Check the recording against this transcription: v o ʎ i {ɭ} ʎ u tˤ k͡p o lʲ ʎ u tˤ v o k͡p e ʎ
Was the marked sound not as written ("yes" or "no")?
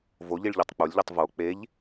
no